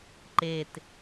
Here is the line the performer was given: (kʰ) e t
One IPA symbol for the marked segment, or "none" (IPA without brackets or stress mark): ǃ